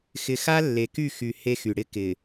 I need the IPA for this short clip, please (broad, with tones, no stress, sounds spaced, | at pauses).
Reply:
x ɪ˨ x a˦ lː e˨ k y˦˨ x y˨ h e˦ x y˨ ɽ ɪ˦ k ɪ˨